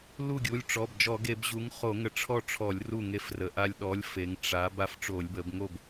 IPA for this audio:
l u˥˩ ɡʲ u˩˧˩ lʲ ʈ͡ʂ ɔ˩˧˩ b d͡ʒ ɔ˧˩˧ ɡ e˧˩˧ b ʑ u˨˥ ŋ χ o˧˩˧ ŋ ə˨˥ ʈ͡ʂʰ ɔ˥˩ ʈ͡ʂʰ ɔ˧˩˧ lʲ r u˥˩ ŋ e˦ f r ə˩˧ ʔ a˦ lʲ ɗ ɔ˨˥ lʲ f e˩˧ ŋ ʈ͡ʂ a˩˧ b a˦ f ʈ͡ʂ o˧˩˧ lʲ b ə˩˧ b ŋ o˥˩ b

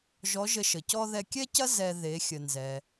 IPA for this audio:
ʒ ɔ˧˥ ʒ ə˧ ʃ ə˩ c ɔ˥ ð ɛ˧ kʲ ɛ˥ c ɐ˥ z ɛ˧ ð e˩˧ xʲ ə˩ n z ɛ˩

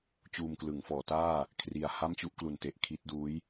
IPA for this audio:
t͡ɕ uː˧ m k l ɯ˩˦ ŋ f ɔː˩˦ t aː˥˩ | kʰ r i˨˩ a̯ h a˥˩ m t͡ɕ u˥˩ ʔ k l u˨˩ n t e˨˩ ʔ kʰ i˦˥ t̚ d uː˦˥ j

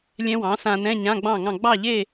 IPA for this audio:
lʲ ɛ̃˦˥ w ɑ̃˩˥ s ã˧ n ɛ̃˧˥˧ ɲ ã˧˥˧ ɡ͡b ɑ̃˥˨ ŋ ɑ̃˥˨ ɡ͡b ɑ˥˨ ʎ e˥˨

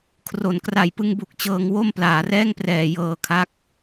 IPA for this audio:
kʰ r o˩˦ n k r a˨˩ j p ɯ˧ ŋ b u˨˩ k̚ t͡ɕ ɤː˧ ŋ w o˥˩ m p l aː˩˦ r ɛː˥˩ ŋ p r ɛː˨˩ j ɤː˧ kʰ a˦˥ k̚

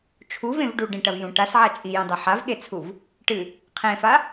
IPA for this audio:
t͡ʃʰ u v ẽ v ɖ u ɖ ẽ ʈ ɐ v j ũ ʈ a s ʕ a t͡ʃʼ i j ũ dˤ ɐ ħ a v ɠ e t͡sʰ u v | ʈ ɨ | qʰ ẽ f a

